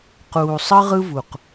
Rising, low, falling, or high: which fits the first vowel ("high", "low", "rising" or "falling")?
low